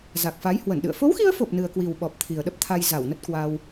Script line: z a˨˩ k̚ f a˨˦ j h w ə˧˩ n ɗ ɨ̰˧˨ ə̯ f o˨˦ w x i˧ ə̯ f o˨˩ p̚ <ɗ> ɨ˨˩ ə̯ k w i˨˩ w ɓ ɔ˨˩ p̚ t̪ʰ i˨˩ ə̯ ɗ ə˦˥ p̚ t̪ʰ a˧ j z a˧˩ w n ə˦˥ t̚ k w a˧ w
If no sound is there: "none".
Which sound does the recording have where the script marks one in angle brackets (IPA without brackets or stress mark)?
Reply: n